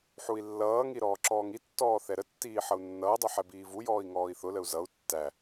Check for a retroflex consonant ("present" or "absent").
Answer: absent